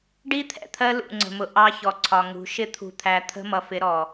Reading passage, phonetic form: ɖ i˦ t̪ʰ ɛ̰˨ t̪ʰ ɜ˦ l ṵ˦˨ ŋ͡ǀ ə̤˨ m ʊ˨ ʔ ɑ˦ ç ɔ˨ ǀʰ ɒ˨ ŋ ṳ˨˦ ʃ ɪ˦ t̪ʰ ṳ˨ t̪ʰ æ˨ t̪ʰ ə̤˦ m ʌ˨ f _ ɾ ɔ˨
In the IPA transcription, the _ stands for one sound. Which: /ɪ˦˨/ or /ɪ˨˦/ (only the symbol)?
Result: ɪ˨˦